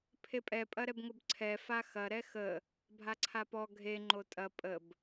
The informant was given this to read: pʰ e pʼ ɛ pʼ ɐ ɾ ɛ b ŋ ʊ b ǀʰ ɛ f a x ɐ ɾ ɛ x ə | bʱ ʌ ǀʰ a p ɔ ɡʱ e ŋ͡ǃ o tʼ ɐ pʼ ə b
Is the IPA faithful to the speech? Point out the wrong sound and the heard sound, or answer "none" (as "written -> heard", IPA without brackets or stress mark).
ʌ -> a